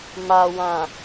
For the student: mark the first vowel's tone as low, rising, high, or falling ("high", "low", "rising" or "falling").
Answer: low